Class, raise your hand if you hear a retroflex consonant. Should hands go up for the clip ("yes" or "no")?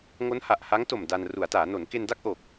no